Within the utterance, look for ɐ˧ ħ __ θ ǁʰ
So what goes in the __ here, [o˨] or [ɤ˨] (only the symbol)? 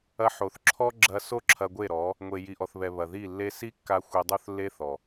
o˨